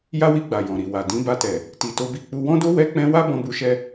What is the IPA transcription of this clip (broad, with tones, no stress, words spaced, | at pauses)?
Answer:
ja˦wi˧ɡ͡ba˨ jɔ̃˨ɾi˨wa˨ dĩ˨˦ba˧tɛ˨ | ti˧to˦bi˦ k͡pu˧wɔ̃˦do˦ wɛ˦k͡pɛ̃˦ wa˦bɔ̃˧bu˧ʃɛ˧